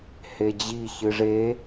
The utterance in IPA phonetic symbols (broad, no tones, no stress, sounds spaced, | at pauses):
h e d͡ʑ i ç ɨ ʐ e